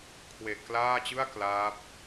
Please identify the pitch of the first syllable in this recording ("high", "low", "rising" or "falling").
low